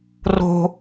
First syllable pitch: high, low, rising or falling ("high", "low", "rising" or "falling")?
low